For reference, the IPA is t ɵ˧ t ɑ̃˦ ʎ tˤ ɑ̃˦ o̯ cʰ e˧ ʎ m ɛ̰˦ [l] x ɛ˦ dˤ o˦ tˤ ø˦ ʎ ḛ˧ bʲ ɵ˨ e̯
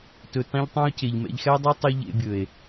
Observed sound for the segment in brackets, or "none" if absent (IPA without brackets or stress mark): ʎ